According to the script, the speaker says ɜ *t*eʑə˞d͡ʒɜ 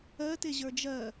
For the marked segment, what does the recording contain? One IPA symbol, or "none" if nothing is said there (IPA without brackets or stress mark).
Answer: t